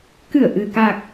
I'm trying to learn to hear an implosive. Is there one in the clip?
no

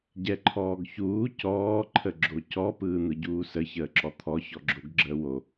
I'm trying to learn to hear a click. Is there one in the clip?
yes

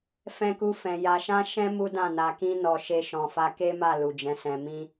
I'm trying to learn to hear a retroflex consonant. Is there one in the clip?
no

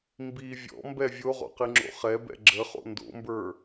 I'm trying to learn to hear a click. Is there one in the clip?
yes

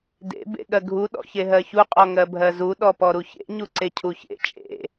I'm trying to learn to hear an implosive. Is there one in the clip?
yes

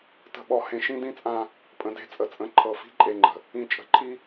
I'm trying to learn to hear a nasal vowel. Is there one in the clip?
yes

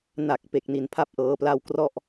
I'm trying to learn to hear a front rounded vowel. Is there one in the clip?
no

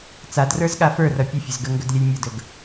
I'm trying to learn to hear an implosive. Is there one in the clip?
yes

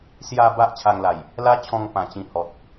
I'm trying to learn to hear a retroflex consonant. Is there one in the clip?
no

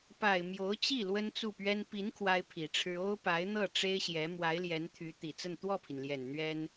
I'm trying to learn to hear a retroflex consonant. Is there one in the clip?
yes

